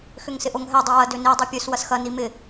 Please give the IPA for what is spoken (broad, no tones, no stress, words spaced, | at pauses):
xʏŋsɪʔoŋɦɛ dˤɛwɐ døni dˤipʲøs wɐsxɐ nimɪ